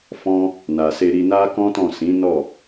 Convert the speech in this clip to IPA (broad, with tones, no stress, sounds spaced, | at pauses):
f ɔ̃˦ | n a˨ s e˧ ɾ i˧ n a˦ k ɔ̃˦ t ɔ̃˦˨ s ĩ˨˦ n ɔ˦˨